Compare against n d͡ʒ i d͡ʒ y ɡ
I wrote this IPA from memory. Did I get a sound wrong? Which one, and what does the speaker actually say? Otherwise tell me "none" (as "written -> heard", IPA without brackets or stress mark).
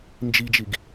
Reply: y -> i